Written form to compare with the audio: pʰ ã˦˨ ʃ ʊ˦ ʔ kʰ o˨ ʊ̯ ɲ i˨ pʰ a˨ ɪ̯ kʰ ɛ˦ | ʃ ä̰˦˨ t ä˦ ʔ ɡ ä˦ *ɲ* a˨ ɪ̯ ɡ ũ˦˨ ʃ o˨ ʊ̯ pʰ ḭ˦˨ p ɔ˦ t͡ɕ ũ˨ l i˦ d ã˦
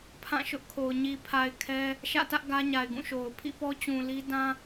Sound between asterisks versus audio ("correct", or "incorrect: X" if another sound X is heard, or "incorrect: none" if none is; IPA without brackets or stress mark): correct